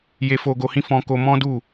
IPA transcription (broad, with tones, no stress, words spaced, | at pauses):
je˨fo˨ɡo˨hĩ˧ fɔ̃˧ko˧mɔ̃˦du˦˨